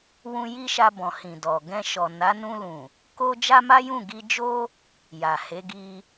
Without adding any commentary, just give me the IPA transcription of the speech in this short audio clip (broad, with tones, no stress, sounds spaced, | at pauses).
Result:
w ũ˧ j i˦ ʃ a˧ b ɔ̃˨ h ĩ˨ d ɔ˨ ɡ ɛ̃˧ ʃ ɔ˨ n a˨˦ n ũ˧ l ũ˨ | k o˦ d͡ʒ a˦ m a˦ j ũ˦˨ ɡ i˧ d͡ʒ o˦ | j a˨ h e˨˦ ɡ i˧